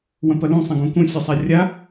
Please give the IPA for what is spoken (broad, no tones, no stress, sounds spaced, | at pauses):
w ɐ̃ p ɐ l ũ sˤ ɐ̃ ɡ ũ k ũ sʲ e sˤ a rʲ a